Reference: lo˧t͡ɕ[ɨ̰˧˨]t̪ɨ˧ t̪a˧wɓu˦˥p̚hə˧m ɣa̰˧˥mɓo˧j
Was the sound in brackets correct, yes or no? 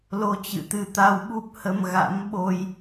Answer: yes